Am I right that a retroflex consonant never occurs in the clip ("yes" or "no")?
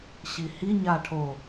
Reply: no